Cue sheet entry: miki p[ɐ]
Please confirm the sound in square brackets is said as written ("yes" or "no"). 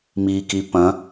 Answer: no